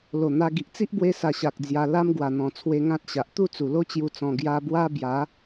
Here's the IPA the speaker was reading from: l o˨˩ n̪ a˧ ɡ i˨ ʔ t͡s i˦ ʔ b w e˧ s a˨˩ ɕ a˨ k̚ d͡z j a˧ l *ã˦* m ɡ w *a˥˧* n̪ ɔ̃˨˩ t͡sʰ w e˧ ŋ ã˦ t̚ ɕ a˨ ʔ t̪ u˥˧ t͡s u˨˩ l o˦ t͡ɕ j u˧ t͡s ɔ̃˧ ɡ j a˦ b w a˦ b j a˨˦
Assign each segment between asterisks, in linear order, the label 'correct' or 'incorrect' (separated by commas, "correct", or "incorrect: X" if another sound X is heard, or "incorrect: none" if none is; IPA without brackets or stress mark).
incorrect: a˦, incorrect: a˨˩